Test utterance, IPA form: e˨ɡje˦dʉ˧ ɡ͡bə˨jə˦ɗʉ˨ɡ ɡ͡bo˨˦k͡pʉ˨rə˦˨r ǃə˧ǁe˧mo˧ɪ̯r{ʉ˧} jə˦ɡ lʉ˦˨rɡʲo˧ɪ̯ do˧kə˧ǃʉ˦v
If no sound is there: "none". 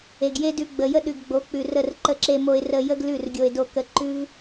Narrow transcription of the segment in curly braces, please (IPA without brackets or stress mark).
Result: ə˧